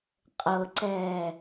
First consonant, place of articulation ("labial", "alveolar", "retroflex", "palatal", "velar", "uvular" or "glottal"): uvular